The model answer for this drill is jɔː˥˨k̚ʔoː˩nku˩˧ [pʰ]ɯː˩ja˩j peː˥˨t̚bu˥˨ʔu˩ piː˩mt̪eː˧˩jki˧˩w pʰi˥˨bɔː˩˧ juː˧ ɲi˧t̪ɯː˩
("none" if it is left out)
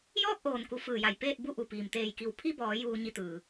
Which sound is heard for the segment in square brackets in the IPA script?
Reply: f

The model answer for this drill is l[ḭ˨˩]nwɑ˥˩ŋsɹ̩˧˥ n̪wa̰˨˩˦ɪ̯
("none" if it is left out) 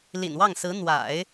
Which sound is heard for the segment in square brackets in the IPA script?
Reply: ḭ˨˩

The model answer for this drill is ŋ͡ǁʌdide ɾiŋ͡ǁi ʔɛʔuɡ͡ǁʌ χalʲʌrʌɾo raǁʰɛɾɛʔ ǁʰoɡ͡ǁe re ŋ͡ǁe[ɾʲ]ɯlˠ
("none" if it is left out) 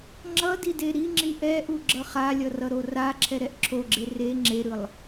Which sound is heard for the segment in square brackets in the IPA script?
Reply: ɾ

